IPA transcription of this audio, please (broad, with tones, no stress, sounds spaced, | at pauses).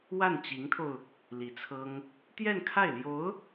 w a˥˩ n t͡ɕ i˧˥ ŋ t̪ʰ o˧ ʊ̯ | l i˧˥ t͡sʰ ɤ˥ ŋ | t̪ j ɛ˥˧ n kʰ a˥˩ ɪ̯ l j o˧˥ ʊ̯